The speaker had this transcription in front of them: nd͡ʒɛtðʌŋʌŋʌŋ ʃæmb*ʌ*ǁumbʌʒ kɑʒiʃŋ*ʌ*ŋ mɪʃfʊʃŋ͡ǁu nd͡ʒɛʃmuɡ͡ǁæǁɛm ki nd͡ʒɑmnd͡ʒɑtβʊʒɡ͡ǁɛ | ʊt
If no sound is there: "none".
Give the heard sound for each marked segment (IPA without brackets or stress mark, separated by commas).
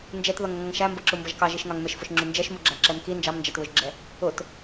ʌ, ɑ